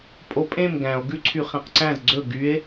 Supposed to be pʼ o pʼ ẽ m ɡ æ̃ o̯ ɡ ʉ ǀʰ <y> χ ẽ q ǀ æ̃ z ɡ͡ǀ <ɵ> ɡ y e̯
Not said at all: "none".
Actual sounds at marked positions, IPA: y, ɵ

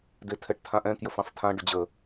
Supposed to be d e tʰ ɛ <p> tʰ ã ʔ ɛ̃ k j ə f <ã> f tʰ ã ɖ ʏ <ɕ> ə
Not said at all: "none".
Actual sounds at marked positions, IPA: ʈ, ɑ̃, d͡ʑ

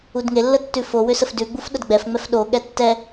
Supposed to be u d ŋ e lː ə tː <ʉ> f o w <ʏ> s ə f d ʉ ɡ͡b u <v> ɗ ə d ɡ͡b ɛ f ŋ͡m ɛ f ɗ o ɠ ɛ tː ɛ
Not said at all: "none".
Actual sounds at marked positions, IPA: ʉ, ʏ, f

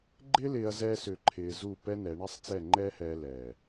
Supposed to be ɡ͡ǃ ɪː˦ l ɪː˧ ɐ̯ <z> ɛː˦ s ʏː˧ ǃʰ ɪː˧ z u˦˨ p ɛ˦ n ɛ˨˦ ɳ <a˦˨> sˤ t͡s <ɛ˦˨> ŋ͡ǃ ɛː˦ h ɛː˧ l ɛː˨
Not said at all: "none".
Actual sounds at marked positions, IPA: z, a˦, ɛ˦˨

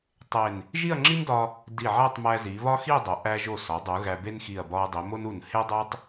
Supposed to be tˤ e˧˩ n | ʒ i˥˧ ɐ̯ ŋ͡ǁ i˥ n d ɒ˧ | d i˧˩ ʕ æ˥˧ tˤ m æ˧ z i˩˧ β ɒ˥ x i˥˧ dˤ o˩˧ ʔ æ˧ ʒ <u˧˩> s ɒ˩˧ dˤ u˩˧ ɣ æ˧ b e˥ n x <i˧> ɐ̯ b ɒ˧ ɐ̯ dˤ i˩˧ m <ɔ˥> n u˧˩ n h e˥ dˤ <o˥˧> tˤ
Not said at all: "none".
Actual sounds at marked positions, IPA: o˧˩, i˧˩, o˥, o˥

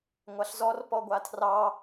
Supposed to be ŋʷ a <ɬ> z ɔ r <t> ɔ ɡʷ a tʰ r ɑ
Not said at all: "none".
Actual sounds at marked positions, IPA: ɬ, p

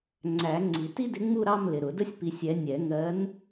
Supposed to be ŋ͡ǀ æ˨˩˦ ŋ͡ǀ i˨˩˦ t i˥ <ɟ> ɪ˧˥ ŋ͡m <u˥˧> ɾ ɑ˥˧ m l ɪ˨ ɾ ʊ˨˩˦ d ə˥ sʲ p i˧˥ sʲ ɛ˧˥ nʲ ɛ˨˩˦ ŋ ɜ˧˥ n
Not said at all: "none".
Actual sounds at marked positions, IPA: d, u˥˧

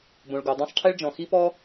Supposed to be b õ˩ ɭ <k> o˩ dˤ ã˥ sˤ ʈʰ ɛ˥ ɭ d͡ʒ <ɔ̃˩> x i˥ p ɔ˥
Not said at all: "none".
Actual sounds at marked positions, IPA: ɡ, ɔ̃˩

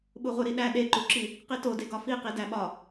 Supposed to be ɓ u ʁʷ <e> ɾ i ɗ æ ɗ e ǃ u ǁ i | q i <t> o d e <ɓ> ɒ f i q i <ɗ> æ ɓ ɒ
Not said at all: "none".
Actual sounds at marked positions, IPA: e, t, ɡ, d

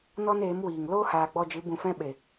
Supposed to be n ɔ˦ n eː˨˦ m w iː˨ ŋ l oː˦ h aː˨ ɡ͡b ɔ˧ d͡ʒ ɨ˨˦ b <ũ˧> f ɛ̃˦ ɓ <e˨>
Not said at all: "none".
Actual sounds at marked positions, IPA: ũ˧, e˨

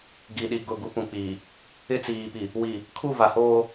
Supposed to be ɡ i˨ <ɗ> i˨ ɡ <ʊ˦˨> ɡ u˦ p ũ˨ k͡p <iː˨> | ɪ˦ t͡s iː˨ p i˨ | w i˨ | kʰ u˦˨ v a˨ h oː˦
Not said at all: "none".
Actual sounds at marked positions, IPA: ɗ, ʊ˦˨, iː˨

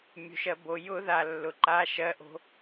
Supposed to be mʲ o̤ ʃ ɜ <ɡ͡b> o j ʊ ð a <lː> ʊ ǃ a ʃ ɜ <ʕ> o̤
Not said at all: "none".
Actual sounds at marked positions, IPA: b, lː, ʔ

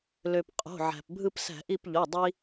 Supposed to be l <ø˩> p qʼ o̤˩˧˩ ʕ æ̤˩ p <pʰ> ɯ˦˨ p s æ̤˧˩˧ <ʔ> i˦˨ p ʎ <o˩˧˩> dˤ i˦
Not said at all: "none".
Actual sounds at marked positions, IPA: ø˩, bʱ, ʔ, o˩˧˩

